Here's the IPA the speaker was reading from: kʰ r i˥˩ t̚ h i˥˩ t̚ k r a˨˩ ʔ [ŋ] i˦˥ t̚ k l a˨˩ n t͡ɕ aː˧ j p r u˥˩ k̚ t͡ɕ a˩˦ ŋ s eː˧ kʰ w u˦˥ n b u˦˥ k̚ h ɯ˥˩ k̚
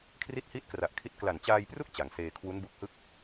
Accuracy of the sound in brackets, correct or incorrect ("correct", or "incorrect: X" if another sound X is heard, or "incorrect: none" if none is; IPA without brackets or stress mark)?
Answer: incorrect: kʰ